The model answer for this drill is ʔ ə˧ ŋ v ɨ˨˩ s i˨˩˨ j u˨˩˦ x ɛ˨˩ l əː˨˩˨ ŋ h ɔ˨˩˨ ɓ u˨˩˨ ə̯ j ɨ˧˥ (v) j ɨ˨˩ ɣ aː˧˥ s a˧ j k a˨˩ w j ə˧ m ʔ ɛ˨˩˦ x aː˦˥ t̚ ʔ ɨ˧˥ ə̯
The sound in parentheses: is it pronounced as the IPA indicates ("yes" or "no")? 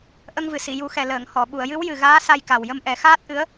no